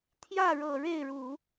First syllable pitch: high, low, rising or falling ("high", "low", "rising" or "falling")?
falling